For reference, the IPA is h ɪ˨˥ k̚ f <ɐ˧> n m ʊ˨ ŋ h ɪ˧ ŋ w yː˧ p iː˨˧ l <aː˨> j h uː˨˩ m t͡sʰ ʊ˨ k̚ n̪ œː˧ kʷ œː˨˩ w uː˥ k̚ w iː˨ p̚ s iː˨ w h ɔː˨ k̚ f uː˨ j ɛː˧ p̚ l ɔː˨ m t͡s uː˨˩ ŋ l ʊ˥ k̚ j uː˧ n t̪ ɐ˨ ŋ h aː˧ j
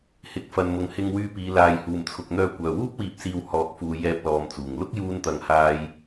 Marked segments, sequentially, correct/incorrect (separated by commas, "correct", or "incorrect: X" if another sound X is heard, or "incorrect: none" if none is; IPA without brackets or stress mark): incorrect: ɐ˨, correct